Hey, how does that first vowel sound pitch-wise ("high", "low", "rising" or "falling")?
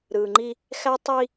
low